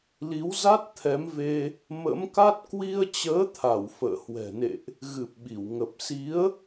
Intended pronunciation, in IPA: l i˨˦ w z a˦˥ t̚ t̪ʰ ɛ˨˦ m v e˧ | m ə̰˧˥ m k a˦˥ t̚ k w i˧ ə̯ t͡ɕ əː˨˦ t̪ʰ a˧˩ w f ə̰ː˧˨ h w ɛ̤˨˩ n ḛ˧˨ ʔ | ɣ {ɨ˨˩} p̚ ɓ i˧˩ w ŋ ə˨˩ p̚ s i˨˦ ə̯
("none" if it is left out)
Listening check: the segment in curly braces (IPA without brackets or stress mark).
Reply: ɨ˨˩